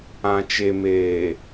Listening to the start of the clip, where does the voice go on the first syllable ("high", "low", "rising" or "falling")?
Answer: low